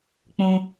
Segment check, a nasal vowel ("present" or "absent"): present